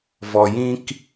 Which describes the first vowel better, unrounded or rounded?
rounded